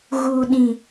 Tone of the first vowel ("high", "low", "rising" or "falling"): low